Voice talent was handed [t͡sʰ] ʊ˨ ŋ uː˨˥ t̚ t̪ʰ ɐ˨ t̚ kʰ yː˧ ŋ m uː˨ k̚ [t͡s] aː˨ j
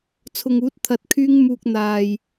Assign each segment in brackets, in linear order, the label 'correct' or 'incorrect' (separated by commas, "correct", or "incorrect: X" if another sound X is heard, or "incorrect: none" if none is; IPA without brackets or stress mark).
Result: correct, incorrect: n̪